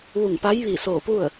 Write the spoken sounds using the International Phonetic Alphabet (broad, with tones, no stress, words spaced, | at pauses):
ʋu˧˩ŋ pa˧˥jʋi˧˩soː˧˩ pu˥˨ə̯